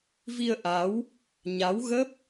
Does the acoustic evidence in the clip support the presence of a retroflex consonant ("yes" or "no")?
no